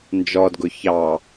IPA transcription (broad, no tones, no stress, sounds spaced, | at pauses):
n d͡ʒ ɔ d ɡ ʊ ç ɑ